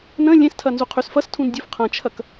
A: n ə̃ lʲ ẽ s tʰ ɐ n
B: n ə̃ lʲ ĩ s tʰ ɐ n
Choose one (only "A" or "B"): A